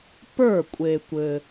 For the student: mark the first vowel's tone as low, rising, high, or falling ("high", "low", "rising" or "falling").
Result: falling